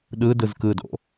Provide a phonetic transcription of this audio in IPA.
ɗ ɯ d ɯ z k ɯ d o̰

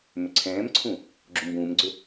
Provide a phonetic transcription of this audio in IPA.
m ʏ ǀʰ ɛ̃ː m ǀʰ ũ | ɡ͡ǁ u m b ũː m ɡ͡ǀ ɵ

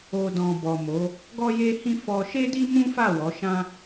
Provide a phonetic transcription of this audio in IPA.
o˨ d ɔ̃˨ b ɔ˨ m o˨˦ | ɡ ɔ˦ j e˦ h ĩ˦ f ɔ˧ ʃ e˦ d i˦ m ũ˦ f a˦˨ w ɔ˨˦ ʃ ã˦

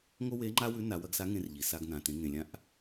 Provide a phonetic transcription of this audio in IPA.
ŋ o˥ w e˧˥ ŋ͡ǃ a˥ w ʉ˧˥ n a˩˧ w ɐ˧ ɡ s a˧˥ ŋ ẽ˧ r ʎ i˩ s a˧ ɡ n ã˩ t ẽ˩˧ ŋ ẽ˩ lʲ ã˧˥ ʔ

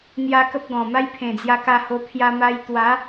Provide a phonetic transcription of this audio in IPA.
n̪ j a˧ k ə˦ p̚ ɡ ɔ̃˨˩ m a˦ j pʰ ẽ˨˩ d͡z j a˧ k a˧ h o˧ pʰ j a˧ m a˧ j t̪ w a˨˦

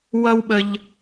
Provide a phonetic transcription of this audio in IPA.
w ʌ˦ w ɓ ə˦ ʎ

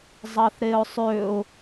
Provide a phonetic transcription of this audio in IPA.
zˤ ɑ θ ɾ e ʊ̯ sˤ ø ʊ̯

